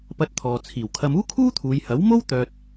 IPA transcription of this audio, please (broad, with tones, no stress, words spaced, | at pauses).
pɐ˧t̚t̪ʰɔː˨t͡sʰiː˨˩w kʰɐ˧muː˥kʰuː˥t̪ʰuː˨˧j hɐ˨˥wmo˥w t̪œː˧t̚